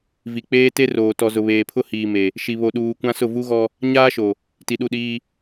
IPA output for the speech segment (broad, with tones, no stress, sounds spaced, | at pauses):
v i˨ k͡p eː˦ t e˦ r oː˨ t ɔ˨ z ʊ˨ β eː˨ pʰ ʊ˦ h iː˨ m e˨ | ʃ i˨ β o˨ ɗ uː˨ kʷ ã˦ s ʊ˦˨ v u˦ ɣ ɔ˦ | ɲ aː˦ ʃ o˨ | t i˨ ɗ u˦˨ ɗ iː˦